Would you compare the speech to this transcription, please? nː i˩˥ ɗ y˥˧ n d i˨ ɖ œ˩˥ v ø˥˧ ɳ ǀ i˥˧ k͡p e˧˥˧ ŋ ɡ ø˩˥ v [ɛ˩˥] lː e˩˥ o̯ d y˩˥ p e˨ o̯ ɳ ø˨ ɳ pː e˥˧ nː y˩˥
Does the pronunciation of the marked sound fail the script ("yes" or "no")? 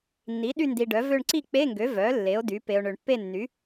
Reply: yes